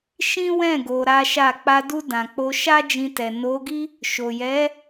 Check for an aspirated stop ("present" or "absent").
absent